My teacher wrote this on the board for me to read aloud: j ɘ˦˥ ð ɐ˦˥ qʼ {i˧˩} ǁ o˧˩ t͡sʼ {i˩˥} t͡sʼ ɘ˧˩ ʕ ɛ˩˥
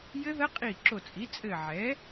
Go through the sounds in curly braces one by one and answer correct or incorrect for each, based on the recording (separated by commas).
correct, correct